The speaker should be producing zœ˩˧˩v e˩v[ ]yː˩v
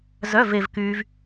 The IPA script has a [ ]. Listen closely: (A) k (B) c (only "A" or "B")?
A